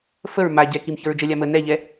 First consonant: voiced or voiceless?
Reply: voiceless